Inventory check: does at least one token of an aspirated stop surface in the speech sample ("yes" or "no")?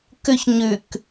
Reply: no